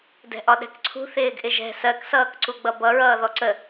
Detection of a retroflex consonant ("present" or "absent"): absent